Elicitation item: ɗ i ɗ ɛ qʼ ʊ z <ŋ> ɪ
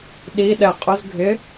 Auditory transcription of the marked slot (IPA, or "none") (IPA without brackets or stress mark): ɡʱ